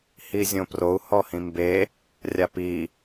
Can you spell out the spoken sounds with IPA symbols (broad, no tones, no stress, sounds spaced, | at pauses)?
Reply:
h i zʲ õ p r o u̯ h ɔ h ĩ m b e | rʲ a p i